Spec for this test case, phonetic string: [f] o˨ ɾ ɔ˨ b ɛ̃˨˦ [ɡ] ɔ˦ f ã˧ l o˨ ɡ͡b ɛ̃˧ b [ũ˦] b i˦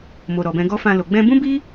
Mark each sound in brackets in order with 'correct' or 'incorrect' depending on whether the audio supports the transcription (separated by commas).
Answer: incorrect, correct, correct